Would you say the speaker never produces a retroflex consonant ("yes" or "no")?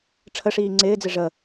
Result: no